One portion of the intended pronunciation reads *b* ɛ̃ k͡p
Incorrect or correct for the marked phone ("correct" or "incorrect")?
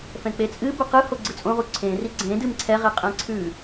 incorrect